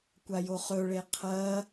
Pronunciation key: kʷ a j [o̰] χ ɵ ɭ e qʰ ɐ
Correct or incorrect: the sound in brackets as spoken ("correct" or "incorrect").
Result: incorrect